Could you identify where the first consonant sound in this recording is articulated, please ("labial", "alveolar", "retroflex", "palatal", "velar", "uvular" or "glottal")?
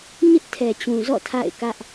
palatal